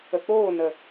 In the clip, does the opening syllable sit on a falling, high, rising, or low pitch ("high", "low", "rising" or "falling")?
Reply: low